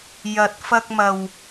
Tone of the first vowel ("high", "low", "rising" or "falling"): low